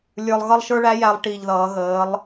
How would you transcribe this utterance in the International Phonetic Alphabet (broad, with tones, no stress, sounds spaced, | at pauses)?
lʲ ə˞˧ lˠ ɣ ʌ˥ lˠ ʃ ə˞˥ ɭ æ˥ j æ˧ lˠ ʈ i˧˩ ʎ ð ʌː˩˧ ɣ əː˩˧ lˠ